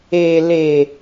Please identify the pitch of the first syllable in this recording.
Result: low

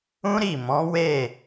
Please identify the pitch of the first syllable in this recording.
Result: high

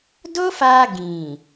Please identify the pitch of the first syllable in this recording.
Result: high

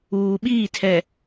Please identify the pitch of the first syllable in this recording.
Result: low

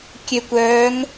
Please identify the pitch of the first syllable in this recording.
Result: low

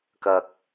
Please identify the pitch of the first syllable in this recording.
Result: low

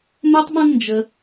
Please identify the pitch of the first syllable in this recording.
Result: high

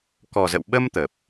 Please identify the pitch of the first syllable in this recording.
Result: low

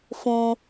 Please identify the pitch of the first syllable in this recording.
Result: high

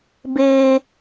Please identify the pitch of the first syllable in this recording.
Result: high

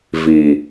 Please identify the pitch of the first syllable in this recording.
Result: low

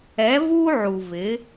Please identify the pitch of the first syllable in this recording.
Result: rising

